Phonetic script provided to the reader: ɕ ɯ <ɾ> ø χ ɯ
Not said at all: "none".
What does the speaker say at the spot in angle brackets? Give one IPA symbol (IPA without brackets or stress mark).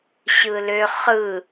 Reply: l